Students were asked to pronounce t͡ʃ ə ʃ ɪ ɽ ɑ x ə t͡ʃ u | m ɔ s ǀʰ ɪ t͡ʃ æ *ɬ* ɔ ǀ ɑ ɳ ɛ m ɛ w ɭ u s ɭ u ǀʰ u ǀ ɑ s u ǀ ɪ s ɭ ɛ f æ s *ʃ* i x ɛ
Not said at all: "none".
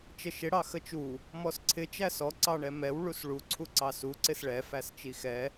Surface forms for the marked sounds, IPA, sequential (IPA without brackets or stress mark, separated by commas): s, t͡ʃ